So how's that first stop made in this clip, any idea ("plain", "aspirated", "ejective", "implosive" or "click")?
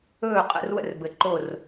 ejective